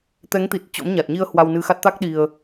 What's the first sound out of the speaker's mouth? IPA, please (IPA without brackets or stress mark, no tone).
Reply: t̪